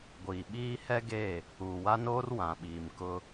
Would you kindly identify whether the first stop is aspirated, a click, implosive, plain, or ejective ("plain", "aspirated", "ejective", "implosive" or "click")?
plain